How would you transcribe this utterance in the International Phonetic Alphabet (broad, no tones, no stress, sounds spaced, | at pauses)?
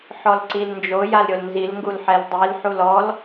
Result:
ħ ɔ l ǀ i l n d͡ʒ o j a l ɾʲ o l n z i l ŋ ɡ u l ħ ɛ l dˤ i l ħ u l ɔ l